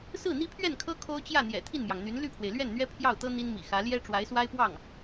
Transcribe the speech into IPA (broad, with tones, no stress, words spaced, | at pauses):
sɹ̩˥˩n̪i˥pʰɥɛ˥˩nkʰɤ˥ kʰo˥ʊ̯t͡ɕjä˥˩n̪jɛ̰˨˩ t̪ʰi˥˩nmjɑ˩ŋn̪y˧˥n ly˥˩pʰwe˩ɪ̯lɥɛ˥˩nn̪ɥɛ˥ pʰjɑ˥˩ʊ̯t̪ɤ˥ n̪i˥nmḭ˨˩xä˧˥ ljɛ˥ ʈ͡ʂwa˧˥ɪ̯swa˥ɪ̯pwɑ˥˩ŋ